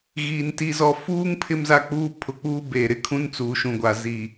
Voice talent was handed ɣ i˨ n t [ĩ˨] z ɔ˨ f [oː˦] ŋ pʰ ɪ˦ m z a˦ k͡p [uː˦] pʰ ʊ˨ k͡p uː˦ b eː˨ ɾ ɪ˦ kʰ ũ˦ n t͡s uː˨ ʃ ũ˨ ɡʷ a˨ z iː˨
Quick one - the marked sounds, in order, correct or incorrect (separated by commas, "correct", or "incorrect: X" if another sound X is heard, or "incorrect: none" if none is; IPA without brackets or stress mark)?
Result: incorrect: i˨, incorrect: uː˦, correct